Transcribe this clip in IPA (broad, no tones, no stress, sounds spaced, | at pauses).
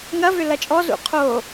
ŋ ɐ v ʏ l ɐ t͡ʃʼ ɔ z ṵ qʰ o